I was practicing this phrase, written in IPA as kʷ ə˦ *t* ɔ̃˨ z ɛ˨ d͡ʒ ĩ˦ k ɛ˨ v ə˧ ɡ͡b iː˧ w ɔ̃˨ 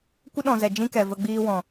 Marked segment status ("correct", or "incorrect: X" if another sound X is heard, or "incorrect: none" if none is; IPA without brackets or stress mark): incorrect: ɗ